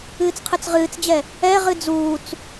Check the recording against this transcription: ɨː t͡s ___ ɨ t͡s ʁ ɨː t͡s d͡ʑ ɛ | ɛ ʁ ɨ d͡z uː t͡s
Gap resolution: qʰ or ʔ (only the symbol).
qʰ